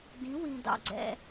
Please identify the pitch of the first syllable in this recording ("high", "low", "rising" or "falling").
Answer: rising